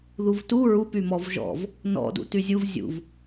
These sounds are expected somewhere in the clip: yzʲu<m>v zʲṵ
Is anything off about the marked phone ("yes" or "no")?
yes